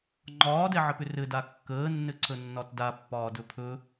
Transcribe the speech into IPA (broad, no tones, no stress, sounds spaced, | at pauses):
ŋ͡ǃ ɒː d ɛ ʕ ɘ p ʏ r ɘ d a kː əː nː ɘ ǀ ə nː ɒ t d a pː ɒː d ɵ pʰ ɵ